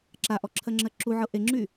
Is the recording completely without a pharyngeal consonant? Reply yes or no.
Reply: no